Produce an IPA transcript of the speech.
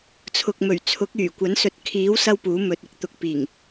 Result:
t͡sʰ ʊ˨ k̚ m ɵ˨˩ ɥ t͡sʰ ʊ˨˥ k̚ yː˨˩ kʷ ɐ˨˥ n s ɵ˨˥ t̚ kʰ iː˨˥ w s ɐ˥ w p uː˨˥ m ɵ˨ t̚ ɪ˨ k̚ t̪ ʊ˨ k̚ p iː˨˩ ŋ

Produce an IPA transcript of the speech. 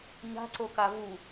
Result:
ɲ a̤ ǀ o k a v u

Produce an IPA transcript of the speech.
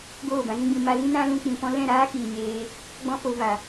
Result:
ɡ oː˦˨ b ã˧ z ĩ˦ ɡ͡b ĩ˧ m a˧ l ĩ˦ n ã˦ l ũ˧ k͡p ĩ˨ p ɔ̃˦ l ɛ̃˦˨ ɾ aː˦ k iː˨ ɲ eː˧ | ɡ͡b ɔ̃˦ f o˧ v a˨

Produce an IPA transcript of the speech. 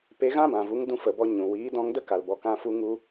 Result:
p e˧ ɣ ã˦ b ã˨ v u˨˦ ŋ d ũ˧ f ə˨ b ɔ˧ ɲ ũ˨ w iː˨˦ d ɔ̃˧ ŋ d ə˦ k a˨ l b ɔ˨ k ã˧ f u˧ ŋ u˧

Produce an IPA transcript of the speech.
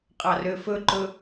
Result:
qʼ ɑ r ø f ɵ ǃ ɵ

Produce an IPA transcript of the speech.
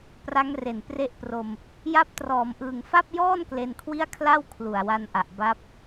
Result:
p r a˦˥ ŋ r e˨˩ n p r e˦˥ ʔ p r o˧ m | j a˦˥ p̚ t r ɔː˩˦ m ʔ ɯː˨˩ ŋ f a˥˩ p̚ j ɔː˥˩ n k l e˧ n kʰ w i˥˩ a̯ kʰ l a˥˩ w kʰ l u˨˩ a̯ w a˧ n ʔ a˨˩ ʔ b a˦˥ p̚

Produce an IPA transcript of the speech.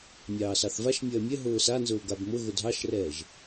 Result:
mʲ ɑː s ɑ θ v a ʃ mʲ ɐː mʲ ɛ ɦ ʊː s a n z ʊː ɡ a b m ʊ ɣ ʊ dʱ ɑ ʃ r ɛː ʒ

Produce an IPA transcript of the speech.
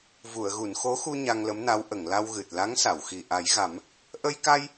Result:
v u˨˩˨ ə̯ ɣ u˨˩˨ n x o˧˥ x u˧ ɲ a˧ ŋ l ə˧˥ m n a˧˥ w ʔ ə˨˩˨ ŋ l a˧ w ɣ ɨ˨˩ t̚ l a˧˥ ŋ s a˨˩˨ w x i˨˩ ʔ a˨˩˦ j ɣ a˨˩˦ m | ʔ ə˧ j k a˧ j

